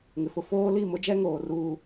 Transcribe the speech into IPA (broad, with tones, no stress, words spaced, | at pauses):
ŋɪ˨fʊ˦ foː˦li˦˨mʊ˦d͡ʒɛ˦ ŋoː˨ruː˦